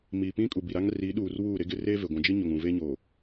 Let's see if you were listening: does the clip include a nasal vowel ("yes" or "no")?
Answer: yes